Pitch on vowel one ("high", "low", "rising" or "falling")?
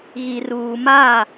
low